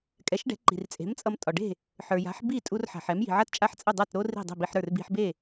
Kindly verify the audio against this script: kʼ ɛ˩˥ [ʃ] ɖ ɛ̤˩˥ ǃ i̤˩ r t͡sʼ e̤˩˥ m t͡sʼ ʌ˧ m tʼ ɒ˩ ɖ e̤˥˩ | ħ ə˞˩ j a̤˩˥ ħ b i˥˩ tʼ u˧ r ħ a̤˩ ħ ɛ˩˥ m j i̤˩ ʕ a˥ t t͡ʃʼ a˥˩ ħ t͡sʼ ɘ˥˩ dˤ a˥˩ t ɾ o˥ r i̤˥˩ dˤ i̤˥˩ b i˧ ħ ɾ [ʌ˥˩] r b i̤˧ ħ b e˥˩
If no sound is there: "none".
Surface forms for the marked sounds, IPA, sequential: ʃ, ə˞˥˩

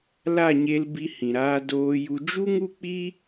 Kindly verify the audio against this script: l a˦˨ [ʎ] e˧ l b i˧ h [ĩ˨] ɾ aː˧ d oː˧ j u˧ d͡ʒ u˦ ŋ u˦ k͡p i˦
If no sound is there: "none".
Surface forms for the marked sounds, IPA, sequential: ɲ, ĩ˨

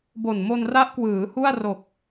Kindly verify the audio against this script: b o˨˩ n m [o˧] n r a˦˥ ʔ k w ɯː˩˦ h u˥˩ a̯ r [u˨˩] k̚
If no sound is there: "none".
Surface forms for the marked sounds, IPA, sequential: o˧, o˨˩

